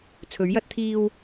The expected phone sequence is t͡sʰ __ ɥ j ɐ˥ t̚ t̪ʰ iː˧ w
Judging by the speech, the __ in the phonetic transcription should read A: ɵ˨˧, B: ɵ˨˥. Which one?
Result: B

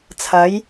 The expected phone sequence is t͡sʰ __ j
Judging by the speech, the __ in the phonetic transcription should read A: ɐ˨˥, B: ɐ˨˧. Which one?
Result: B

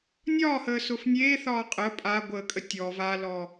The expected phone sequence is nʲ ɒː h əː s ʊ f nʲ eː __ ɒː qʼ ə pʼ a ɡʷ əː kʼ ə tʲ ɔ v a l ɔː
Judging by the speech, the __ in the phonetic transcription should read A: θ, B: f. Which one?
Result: A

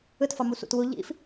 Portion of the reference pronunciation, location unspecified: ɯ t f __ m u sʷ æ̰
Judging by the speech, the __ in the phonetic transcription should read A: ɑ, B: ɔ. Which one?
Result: A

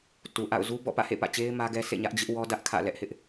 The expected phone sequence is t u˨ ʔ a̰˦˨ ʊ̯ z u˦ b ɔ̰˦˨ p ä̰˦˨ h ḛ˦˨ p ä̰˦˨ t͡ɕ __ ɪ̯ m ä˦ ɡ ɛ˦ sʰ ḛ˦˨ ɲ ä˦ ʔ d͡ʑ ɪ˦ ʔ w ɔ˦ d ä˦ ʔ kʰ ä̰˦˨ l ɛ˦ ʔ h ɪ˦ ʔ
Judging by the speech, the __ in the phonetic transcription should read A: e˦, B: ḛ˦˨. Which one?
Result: A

